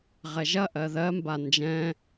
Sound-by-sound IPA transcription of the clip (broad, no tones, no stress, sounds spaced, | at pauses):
ʁ ɛ ʒ ɐ ʔ ɜ ð ɜ m b a n d͡ʒ ɛ̃